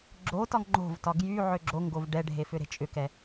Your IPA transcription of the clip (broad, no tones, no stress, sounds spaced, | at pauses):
ɡ͡ǁ o t ɒ ŋ ŋ͡ǃ o̤ v t ɒ ɡ j y ʕ ø ɡ͡ǁ o ŋ ɡ o v ɖ ɛ ɖʱ e f ʏ ɾ e̤ t͡ʃʼ ʏ k ɛ